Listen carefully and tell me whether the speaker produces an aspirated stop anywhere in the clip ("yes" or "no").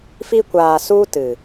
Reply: no